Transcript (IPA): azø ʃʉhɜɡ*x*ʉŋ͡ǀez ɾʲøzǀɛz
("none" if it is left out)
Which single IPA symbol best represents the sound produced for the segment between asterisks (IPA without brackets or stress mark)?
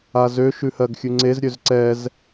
xʲ